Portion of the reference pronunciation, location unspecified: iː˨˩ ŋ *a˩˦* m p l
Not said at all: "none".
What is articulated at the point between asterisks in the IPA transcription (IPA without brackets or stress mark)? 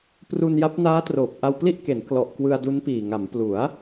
a˩˦